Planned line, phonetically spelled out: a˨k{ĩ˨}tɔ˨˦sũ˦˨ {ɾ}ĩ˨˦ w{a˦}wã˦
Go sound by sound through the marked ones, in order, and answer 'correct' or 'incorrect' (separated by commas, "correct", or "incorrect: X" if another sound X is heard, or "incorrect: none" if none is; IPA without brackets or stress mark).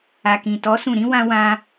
correct, correct, incorrect: ã˦